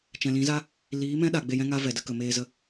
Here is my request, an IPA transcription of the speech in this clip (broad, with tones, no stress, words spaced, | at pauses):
t͡ʃɛ̃˨lĩ˨˦za˦ | liː˨˦mɛ̃˦ɗa˨ ɡ͡be˧jɛ̃˦ŋa˦ vɛ˨də˧kə˨ meː˧ zə˧